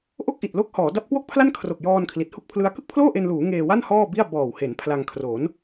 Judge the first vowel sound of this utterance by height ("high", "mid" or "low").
mid